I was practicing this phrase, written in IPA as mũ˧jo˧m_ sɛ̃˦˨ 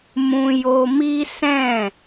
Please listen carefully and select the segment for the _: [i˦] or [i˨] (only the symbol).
i˦